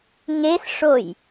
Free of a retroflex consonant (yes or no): no